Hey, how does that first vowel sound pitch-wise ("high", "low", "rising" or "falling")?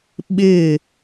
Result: falling